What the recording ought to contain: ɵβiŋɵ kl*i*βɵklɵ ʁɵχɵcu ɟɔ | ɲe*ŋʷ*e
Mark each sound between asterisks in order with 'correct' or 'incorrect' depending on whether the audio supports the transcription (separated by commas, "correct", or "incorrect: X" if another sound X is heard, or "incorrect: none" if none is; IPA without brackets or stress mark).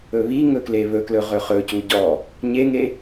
incorrect: e, incorrect: ŋ